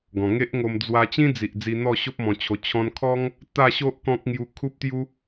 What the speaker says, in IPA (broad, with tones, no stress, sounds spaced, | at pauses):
ɡ ɔ̃˨˩ ŋ e˦ ʔ ŋ o˧ m d͡z w a˧ t͡ɕ ĩ˦ d͡z i˨ ʔ d͡z i˧ n̪ ɔ˥˧ ɕ o˦ p̚ m ɔ̃˧ t͡ɕʰ o˧ t͡ɕʰ ɔ̃˧ n kʰ ɔ˦ ŋ | t̪ a˥˧ ɕ o˦ ʔ k ɔ̃˦ k̚ ŋ j u˧ kʰ u˦ p̚ t̪ j u˦